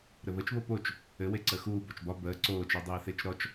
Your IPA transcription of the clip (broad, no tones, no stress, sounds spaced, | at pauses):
ɾ ɘ β ə t͡ʃ β o p o t͡ʃ | ɘ w e ǀ əː x uː b ɔ t͡ʃ b ɒ b əː ǀ oː t͡ʃ o dˤ eː θ e t͡ʃ ɾ ɔ t͡ʃ